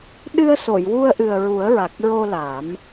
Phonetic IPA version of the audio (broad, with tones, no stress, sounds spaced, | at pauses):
ɗ ɨ˧ ə̯ s o˨˩˨ j w u˧ ə̯ ʔ ɨ˨˩ ə̯ ɹ u˨˩˦ ə̯ ɹ a˨˩ k̚ ɹ o˧ l a˨˩˦ m